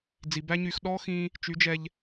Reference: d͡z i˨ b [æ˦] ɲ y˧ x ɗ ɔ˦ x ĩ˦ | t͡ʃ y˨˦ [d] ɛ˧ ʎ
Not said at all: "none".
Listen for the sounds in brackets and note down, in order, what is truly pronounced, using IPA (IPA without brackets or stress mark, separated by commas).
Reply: æ˦, d͡ʒ